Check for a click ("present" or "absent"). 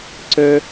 present